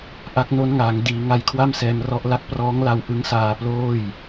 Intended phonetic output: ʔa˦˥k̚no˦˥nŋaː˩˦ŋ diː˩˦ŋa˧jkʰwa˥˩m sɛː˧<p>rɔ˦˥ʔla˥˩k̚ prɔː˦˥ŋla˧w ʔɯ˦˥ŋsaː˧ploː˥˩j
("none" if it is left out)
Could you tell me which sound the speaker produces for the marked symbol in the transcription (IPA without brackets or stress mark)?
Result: m